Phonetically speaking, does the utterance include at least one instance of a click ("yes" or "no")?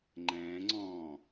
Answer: yes